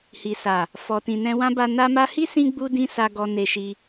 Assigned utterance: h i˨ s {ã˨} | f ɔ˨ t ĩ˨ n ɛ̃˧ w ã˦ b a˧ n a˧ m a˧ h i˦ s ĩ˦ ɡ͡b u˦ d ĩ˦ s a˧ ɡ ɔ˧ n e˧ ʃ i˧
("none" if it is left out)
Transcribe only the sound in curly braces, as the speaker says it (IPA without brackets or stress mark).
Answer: a˨